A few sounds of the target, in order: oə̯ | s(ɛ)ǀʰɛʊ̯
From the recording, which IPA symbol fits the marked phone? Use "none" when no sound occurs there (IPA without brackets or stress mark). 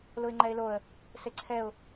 e